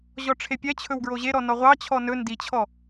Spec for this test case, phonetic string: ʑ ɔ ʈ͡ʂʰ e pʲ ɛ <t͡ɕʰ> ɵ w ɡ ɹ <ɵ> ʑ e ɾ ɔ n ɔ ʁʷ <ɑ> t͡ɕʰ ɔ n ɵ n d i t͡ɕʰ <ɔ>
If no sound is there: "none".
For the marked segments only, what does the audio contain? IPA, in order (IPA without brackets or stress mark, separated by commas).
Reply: t͡ɕʰ, o, ɑ, ɔ